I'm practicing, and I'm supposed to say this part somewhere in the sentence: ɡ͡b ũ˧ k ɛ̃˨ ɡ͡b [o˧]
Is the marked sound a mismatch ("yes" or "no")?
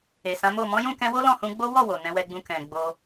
no